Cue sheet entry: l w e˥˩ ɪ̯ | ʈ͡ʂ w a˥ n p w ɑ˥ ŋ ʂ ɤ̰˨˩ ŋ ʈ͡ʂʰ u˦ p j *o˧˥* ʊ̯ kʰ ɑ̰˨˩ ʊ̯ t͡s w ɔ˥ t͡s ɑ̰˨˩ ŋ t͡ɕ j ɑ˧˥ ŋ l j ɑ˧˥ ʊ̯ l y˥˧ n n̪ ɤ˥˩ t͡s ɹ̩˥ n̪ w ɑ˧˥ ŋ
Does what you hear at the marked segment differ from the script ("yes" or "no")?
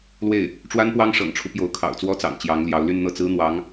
no